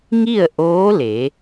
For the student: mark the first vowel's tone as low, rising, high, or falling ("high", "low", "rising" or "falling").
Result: falling